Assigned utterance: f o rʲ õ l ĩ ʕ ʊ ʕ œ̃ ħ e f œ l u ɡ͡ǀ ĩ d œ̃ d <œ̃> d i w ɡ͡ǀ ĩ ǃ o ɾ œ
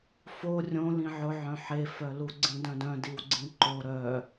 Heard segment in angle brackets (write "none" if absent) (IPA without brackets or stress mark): œ̃